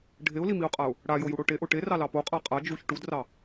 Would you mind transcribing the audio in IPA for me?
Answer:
ɖʱeʊ̯limiʊ̯qʼaʊ̯ | ɽajojuɽo ʈeʔo ʈerɑlɑ poqʼa qʼa d͡ʒuç ʈudrɑ

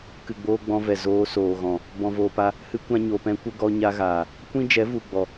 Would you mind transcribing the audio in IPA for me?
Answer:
kɨ˨ɡ͡boː˧ ɡ͡bɔ̃˧vɛ˨ zoː˧ soː˨ɣɔ̃˨ | bɔ̃˨voː˨pa˧ | hɨ˧kʷã˧ ɲo˨pɛ̃˧kʷə˦ ɡɔ˧ɲa˧ɣaː˨ | kʷĩ˦d͡ʒɛ˨˦vu˨ ɡ͡bɔ˨

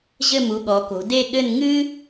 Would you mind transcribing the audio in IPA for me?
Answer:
ʑɘ˥˧mu˩˧ɠɔ˩˧ko̤˩˧ de˥˧ɠɘ˥˧n ŋɨ˥

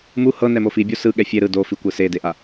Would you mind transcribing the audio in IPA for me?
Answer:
mu hɤnɛmo fibʲo sɯɠɛ fʲe ɾɯ do fikʷɯ sedeʔa

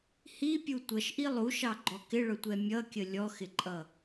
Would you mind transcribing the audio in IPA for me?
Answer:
hipʲu tʷʌʃʔi lˠuʃɑɡ͡ǃɔ kɪɭʊtʷɛ mʲʌkʲə lʲɔxɪǃʼʌ

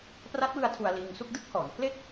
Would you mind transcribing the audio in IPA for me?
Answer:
pra˦˥t̚wɯ˧a̯ tʰu˧a̯liː˧ŋsu˥˩k̚ dɯ˥˩k̚hɔː˩˦npʰle˥˩k̚

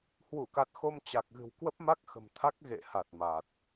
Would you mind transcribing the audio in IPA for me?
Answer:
hwu˧˩ka˨˩t̚ xo˧mt͡ɕa˨˩k̚ɣɨ̤˨˩w kwə˦˥p̚ma˦˥k̚xə̤˨˩mt̪ʰa˦˥k̚ ɣḛ˧˨ha˨˩t̚ ma˨˩t̚

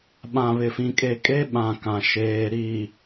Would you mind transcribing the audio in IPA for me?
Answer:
ɓã˨βɪ˨fĩ˨ kʼe˨kʼe˦ɓã˨ kã˨ ʃeː˨ɾi˨

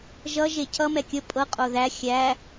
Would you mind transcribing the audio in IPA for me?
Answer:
ʒʌʒe cʰʌmɛ kʲə pʼɤqʼo ðæ xʲæ

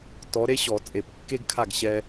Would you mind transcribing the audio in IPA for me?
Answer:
tɔ˨˥ɾe˥ɕɔ˨˩˦ t͡sʼe˨˩˦pkːe˥ɡkʰa˥˩ɡ ɕɛ˥

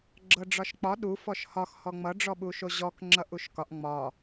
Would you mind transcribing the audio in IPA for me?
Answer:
ɡ͡ǁɤɖ͡ʐɒʃk͡pɒ ɗu fɔʃhɒx hɔŋ͡mʌ ɖ͡ʐɔɓuʃoʑɔk ŋ͡ǁʌʔuʃkɒʔ ŋ͡mɒ

